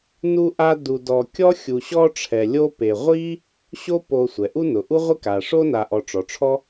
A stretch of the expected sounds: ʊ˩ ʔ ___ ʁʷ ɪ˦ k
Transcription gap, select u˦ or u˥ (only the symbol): u˥